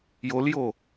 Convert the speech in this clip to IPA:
joljo

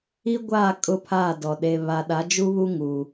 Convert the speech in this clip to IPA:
i˦ɡʷaː˦˨ kʼʊ˦pʰaː˦˨dɔ˨ ɗe˨ βa˨ɗa˨˦d͡ʒu˦ βu˦ ŋuː˨

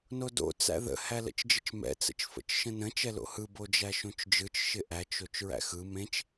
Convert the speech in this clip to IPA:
nodo̰ t͡sæ̰ðə̰ hælə̰t͡ʃd͡ʒɪt͡ʃmɛ̰ t͡sə̰t͡ʃfə̰t͡ʃʃə̃nə̃ t͡ʃɛlo̰hɯ bod͡ʒæʃõt͡ʃd͡ʒɯt͡ʃ ʃɪʔæt͡ʃ ot͡ʃɹæ̰xɯ mẽt͡ʃ

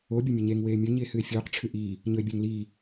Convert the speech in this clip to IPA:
o bʲɐmʲɵɲeŋ weːmʲɵ ɲie̯hɨe̯fʲɵːq ʈ͡ʂʰɨʔiː | ɲɵe̯bʲaŋliː

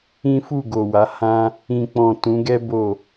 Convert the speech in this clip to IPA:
ĩ˦fu˦˨ɡo˨wa˨˦ hã˦ | ĩ˨k͡pɔ̃˨ tũ˨˦ɡɛ˦ bo˦˨

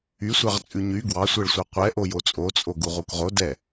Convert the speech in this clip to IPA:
ysʷɑʁt͡sʼʉ ɲy ɡwɑsʷɛɭsʷɑ qʷɛʔo jot͡sʼot͡sʼoɡuʁ ukʁo dɛ

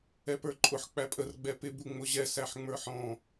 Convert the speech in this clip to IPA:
ɛpə˞ǃʼʊħ k͡pæpʼər ɡ͡bɛpɪ buŋ͡mʊʑɛ sæħŋ͡mə˞ħɔ̃

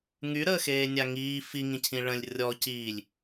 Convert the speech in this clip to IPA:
ŋyɾəː xeːnʲaŋiː fiŋĩcʰĩ ɭə̃lʲ rʲɔ ciːlʲ

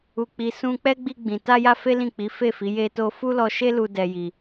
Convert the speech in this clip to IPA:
u˧k͡pi˧ sũ˧k͡pɛ˦ ɡ͡bi˧ɡ͡bĩ˨ ta˧ja˧ fe˦ lĩ˦˨k͡pi˨˦ fe˦˨fi˨˦ je˧to˧ fu˦lɔ˧ʃe˦lu˧ dɛ˦ji˧

